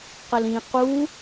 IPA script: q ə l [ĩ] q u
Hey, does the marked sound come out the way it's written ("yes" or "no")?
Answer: yes